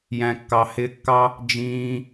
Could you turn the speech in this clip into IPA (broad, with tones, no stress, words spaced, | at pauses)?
jæ̃˨kːɑ˨hɪː˧kːɑ˦ | d͡ʒĩː˧